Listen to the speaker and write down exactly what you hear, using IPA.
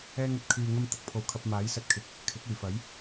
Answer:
ɛː˧ ŋ ɵ˧ t̚ kʰ yː˨ ŋ ɐ˧ m t̪ ɐ˧ k̚ pʰ o˨˩ w kʰ ɐ˨ p̚ m aː˨˥ j s ɐ˧ t̚ kʰ ɪ˨ k̚ | kʰ ɪ˨˥ k̚ yː˨˩ f ɐ˨˥ j

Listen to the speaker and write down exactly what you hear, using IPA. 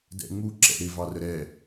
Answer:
d ɛ̰ ŋ͡m u ǁ ɛ̰ ɾ ɪ v ɑ r ə ɾ ɛ

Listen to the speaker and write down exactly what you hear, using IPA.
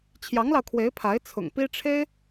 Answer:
t͡ɕʰ j ɑ˧˥ ŋ l ɑ˧ ʊ̯ kʰ w e˧˥ ɪ̯ pʰ a˧˥ ɪ̯ t͡sʰ ʊ̰˨˩ ŋ p i˥ ʈ͡ʂʰ e˥ ɪ̯

